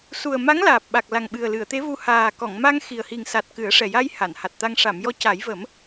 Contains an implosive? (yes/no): yes